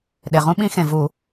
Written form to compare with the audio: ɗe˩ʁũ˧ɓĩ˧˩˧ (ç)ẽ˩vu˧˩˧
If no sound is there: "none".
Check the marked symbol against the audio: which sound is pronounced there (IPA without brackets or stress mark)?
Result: x